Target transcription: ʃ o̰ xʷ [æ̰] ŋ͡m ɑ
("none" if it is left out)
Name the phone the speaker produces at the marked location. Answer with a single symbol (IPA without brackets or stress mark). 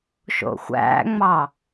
æ̰